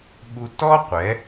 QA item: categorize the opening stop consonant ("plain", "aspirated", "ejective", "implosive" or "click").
implosive